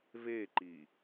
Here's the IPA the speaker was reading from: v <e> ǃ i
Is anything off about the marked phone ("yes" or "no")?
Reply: no